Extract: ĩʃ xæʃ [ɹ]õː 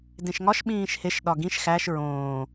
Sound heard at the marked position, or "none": ɹ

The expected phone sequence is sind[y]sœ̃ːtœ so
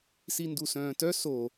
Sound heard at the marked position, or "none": u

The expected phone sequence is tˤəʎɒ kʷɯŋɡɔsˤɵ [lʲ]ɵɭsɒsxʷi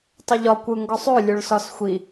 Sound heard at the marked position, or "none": lʲ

